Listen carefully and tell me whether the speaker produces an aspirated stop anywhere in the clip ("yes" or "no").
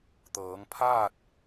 yes